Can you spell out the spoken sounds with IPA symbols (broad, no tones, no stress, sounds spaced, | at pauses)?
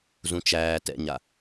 z ũ t͡ʃ æː t ɛ̰ ɲ a